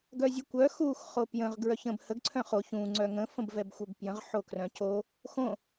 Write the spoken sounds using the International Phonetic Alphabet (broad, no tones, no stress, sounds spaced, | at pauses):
ɡ œ zʲ ə kʷ œ x u x χ o p j ə̃ ʁ ɡ ɹ œ ç ə̃ b h ə ɡ ǀʰ œ̃ χ o ç ũ ŋ͡ǀ œ ŋ ə̃ f ə̃ b v ɛ b xʷ œ b p j ə̃ ʁ ħ o k r œ̃ c o | x õ